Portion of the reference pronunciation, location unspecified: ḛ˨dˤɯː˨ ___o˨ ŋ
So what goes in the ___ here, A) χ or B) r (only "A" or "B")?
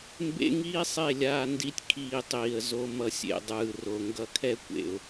B